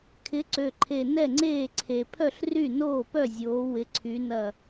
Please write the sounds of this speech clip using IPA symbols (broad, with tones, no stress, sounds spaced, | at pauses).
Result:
kʰ ɪ˨˥ ǀ ø˨˩ ǃʰ e˨˩ n ɛ˥˩ ŋ͡ǀ eː˥˩ ǀʰ e˨˩ pʰ œ˥˩ ɬ r y˥˩ n oː˥˩ p œ˥˩ zʲ oː˨˥ w ɪ˨˥ ǀʰ y˨˥ n ɐ˥˩